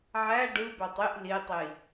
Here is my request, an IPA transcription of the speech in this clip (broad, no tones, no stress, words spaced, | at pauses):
ʕæ ɖɯbætˤ iʔ litˤi